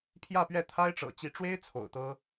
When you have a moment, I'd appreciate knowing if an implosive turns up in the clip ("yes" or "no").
no